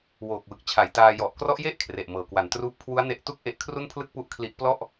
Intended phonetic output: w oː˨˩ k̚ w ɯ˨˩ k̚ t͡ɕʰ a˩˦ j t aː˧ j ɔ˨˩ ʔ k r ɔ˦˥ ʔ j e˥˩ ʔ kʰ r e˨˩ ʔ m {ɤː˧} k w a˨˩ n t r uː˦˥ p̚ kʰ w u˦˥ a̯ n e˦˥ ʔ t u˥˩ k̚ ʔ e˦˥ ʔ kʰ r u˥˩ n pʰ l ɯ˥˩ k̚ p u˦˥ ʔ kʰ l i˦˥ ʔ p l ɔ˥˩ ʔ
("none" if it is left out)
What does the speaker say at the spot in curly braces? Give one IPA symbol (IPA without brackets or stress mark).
ɤː˨˩